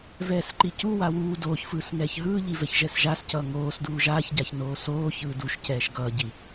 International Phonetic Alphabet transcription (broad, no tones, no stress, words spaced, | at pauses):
vɛːsǃicu wawuː doːçfɯːsŋɛːç ɦɯːʎi vɛçʒɛsʒascʌː ŋoːsduː ʒaːçɟaçnoː soː çɯːduʃcɛːʃ ɡʌːɟi